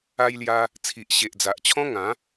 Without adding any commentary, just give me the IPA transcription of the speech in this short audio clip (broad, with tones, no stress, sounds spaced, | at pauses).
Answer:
a˧ j l j a˧ | t͡sʰ i˨ ʔ ɕ e˨ ʔ d͡z a˨ ʔ t͡ɕʰ ɔ̃˦ ŋ ã˨˦